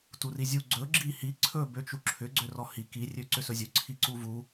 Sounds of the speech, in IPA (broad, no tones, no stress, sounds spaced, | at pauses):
t u r i zʲ u ɡ͡ǀ ɵ ɡ͡ǁ i h i ǀʰ ɵ b ø t͡ʃ u ǁʰ ʏ ɡ͡ǀ ø r ɔ h i k i rʲ ø ǀ ʏ s ɵ zʲ ɵ ǀʰ i ǀ u v u